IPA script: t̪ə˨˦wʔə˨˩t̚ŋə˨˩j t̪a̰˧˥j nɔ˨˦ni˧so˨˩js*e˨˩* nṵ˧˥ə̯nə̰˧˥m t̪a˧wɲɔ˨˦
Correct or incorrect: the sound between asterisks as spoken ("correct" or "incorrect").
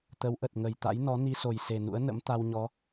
correct